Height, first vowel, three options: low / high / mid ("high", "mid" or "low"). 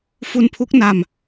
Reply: high